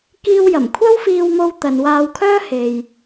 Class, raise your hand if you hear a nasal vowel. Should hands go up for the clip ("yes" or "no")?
no